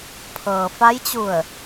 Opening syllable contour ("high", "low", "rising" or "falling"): low